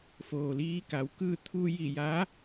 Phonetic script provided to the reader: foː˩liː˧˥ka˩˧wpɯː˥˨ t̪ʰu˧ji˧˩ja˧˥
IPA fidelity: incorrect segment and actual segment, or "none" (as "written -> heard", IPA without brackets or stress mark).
p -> k